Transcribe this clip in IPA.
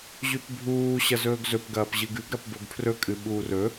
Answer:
ʑ ʉ p bʱ uː ɕ ɐ z ɵː ɡ z ɵ p ɡ ɐː p ʑ ɨ ɡ ʉ ɡ ɾ ɐ p b o ɡ pʰ r ɵ kʼ ɨ ɓ uː r ɵ

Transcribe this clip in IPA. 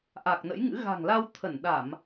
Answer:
ʔ a˨˩ k̚ n ə̰˧˥ j ŋ ɨ̰˧˥ ɣ a̤˨˩ ŋ l a˧ w t̪ʰ ə˧˩ n ɗ a˧˩˨ m

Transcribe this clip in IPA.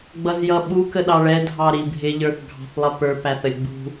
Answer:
ɡ͡b ʌ z j ʌ ɓ u k ə ɗ ɑ ɭ ɛ dʱ ɑ ɾ i bʱ ɪ ʎ ə˞ θ ɡʱ ɑ̤ θ lˠ ʌ p ə˞ p æ θ ə lʲ ɡ͡b ṳ

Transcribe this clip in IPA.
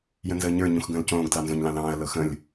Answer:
j ə̃ n z əː ɲ ə˞ ɲ ũ x ɡ ə̃ː l c õː ɡ d l ɑ n z õ ɲ l ɑ̃ l ɑ̃ː ɐ̯ l ɤ x ə̃ lʲ

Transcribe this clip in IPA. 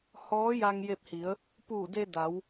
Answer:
h ɔː˧˥ j a˧ ŋ j e˧ p̚ h i˩˧ ə̯ | p uː˧˩ d e˧ d a˩˧ w

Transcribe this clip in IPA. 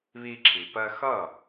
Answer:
β i˧ ǁʰ i˩ p ɜ˧ x ʌ˥˩

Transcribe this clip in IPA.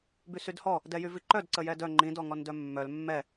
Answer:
b y s y d h ɔ | d ɛ j y v i ǃ œ d ǀ ə j ɛ d œ ŋ͡ǃ ĩ d ɔ ŋ ɔ n d œ mː œ l mː ɛ

